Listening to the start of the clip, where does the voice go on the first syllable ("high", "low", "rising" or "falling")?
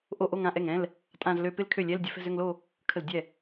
falling